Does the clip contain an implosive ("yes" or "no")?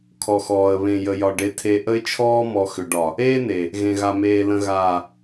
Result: no